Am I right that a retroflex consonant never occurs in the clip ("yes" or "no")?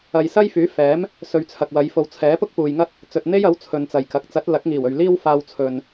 yes